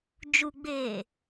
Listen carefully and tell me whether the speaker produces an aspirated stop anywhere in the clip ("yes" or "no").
no